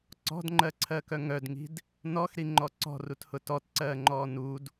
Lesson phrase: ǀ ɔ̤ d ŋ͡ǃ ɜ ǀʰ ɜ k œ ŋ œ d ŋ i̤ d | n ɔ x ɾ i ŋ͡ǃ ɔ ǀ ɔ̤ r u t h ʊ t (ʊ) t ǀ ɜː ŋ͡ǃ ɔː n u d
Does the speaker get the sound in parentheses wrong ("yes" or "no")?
yes